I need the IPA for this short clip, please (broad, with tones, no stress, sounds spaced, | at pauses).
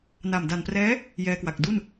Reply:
n a˨˩ m d a˨˩ n p r ɛː˦˥ | j ɛː˧ k w a˨˩ k̚ d u˥˩ n